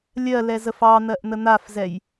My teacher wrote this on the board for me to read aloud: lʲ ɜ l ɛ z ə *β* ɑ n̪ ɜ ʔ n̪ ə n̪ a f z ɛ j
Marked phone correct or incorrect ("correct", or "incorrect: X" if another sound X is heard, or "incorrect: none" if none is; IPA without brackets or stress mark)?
incorrect: f